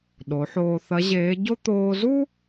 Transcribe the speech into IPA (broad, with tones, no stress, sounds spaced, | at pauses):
ɗ o˩˧ ħ oː˧ θ ɐ˧˥ ʑ eː˧˥ ɟ o˥ t̪ oː˧ z u˥